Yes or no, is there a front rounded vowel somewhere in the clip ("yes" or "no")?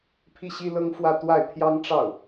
no